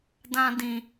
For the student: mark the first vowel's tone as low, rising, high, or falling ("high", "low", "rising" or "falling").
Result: high